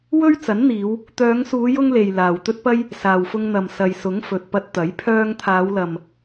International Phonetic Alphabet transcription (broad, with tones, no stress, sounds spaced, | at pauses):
w ɵ˥ ɥ t͡s ɐ˨˥ n n̪ iː˨˧ w | t̪ œː˨˧ ŋ s uː˨˧ j ʊ˧ ŋ l e˨ j l aː˨ w t̪ ɵ˥ t̚ p ɐ˥ j | s aː˨ w f ʊ˧ ŋ n̪ ɐ˨ m s ɐ˨ j s ʊ˨˥ ŋ f ɵ˨ t̚ p ɐ˧ t̚ t̪ ɐ˨˥ j pʰ œː˧ ŋ t̪ʰ aː˨˧ w l ɐ˨ m